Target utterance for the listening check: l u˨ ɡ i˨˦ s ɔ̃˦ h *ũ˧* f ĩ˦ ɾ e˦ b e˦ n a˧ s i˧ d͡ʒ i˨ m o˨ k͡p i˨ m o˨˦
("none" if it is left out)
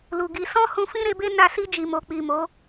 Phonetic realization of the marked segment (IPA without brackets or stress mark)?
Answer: ũ˧